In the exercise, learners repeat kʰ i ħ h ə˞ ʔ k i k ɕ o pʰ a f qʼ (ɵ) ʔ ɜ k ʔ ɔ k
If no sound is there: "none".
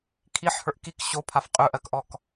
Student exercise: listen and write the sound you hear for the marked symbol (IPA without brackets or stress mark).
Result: ɵ